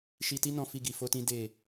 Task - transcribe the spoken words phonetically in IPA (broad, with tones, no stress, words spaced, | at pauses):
ʃi˧ti˦ nɔ̃˦fi˦ɡi˧ fo˦tĩ˦ de˦˨